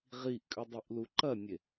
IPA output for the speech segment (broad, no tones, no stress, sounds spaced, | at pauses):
ʁ i ʔ kʼ ʉ dˤ i ʔ l u ǃ ɐ nʲ e